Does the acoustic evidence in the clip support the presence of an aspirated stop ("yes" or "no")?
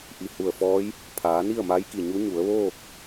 yes